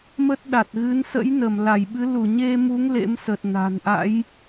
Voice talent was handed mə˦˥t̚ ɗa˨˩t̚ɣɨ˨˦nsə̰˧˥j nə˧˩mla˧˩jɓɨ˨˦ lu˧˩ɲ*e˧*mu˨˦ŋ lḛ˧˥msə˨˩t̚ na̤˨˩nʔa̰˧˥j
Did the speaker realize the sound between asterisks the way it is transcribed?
yes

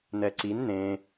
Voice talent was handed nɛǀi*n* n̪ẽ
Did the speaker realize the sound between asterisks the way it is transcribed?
yes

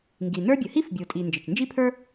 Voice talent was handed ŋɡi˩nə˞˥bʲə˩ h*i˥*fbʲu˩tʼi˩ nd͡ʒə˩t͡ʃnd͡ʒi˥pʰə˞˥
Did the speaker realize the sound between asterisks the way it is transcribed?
yes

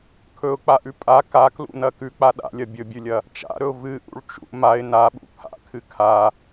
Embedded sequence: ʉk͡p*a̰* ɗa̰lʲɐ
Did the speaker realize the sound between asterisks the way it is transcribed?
no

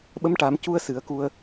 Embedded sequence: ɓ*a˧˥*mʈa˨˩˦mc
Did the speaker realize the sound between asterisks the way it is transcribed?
no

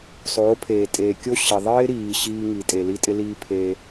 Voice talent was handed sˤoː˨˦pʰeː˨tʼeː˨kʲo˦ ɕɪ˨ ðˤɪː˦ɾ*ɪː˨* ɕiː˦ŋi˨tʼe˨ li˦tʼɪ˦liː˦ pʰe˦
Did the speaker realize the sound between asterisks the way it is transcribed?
no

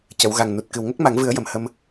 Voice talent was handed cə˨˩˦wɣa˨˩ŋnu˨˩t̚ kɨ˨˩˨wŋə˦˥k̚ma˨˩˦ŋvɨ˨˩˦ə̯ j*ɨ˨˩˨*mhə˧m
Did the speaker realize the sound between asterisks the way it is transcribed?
no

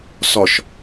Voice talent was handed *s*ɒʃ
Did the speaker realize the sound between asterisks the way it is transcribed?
yes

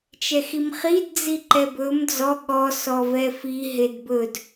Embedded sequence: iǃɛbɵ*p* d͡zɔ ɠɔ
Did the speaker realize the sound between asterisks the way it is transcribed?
no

